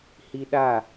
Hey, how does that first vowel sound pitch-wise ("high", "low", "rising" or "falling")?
high